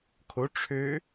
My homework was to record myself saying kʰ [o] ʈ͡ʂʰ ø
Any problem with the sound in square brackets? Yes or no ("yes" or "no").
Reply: no